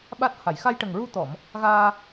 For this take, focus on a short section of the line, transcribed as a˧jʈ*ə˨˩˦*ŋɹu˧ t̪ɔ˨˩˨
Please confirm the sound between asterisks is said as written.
no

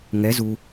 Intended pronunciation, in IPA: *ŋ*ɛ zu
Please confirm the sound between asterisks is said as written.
yes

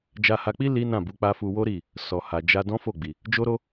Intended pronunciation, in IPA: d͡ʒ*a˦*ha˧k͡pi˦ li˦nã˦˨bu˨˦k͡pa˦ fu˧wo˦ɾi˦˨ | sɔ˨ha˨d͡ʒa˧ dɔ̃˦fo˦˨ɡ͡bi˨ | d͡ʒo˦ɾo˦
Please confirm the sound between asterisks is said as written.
no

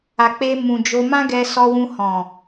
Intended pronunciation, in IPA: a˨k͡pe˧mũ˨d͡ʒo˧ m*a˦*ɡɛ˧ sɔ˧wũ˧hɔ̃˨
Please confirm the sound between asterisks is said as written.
no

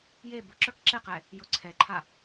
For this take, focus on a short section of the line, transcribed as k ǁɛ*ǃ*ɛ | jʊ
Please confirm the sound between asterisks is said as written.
no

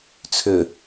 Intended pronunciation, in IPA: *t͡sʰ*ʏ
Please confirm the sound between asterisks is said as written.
yes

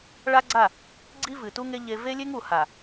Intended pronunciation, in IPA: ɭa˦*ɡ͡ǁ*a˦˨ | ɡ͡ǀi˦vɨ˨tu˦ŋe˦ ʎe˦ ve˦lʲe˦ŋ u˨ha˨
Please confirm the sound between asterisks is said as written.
no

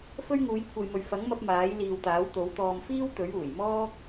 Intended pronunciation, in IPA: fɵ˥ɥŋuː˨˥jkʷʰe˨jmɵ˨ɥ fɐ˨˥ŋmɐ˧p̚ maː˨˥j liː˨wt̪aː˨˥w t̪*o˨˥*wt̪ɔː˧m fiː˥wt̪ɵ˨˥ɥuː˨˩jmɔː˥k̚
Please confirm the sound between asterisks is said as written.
yes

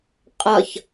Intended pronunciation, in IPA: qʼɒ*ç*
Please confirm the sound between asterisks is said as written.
yes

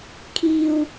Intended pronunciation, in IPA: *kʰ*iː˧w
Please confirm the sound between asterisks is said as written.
yes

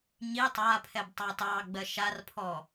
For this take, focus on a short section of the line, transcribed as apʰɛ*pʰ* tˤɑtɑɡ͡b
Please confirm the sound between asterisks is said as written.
no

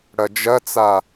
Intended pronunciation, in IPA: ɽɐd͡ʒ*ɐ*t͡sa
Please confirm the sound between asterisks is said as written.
yes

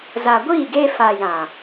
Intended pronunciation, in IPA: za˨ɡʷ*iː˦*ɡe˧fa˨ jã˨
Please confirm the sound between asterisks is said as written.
no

